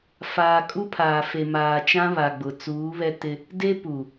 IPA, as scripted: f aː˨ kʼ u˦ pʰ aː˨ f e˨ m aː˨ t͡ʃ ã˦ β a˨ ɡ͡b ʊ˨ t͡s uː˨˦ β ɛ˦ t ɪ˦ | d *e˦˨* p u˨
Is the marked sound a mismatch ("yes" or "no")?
yes